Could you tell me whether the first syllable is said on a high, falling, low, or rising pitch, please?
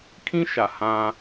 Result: high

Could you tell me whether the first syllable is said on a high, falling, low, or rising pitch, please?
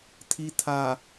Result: low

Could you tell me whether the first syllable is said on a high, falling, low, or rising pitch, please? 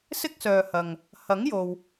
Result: high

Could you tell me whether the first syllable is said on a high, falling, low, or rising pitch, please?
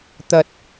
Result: high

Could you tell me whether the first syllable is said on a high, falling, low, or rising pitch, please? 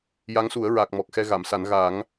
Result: rising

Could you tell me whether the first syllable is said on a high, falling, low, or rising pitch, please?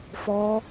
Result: high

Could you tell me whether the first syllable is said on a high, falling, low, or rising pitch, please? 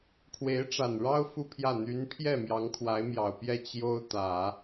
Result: rising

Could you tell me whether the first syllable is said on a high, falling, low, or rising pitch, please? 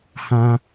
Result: high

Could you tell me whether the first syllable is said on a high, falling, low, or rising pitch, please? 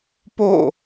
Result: falling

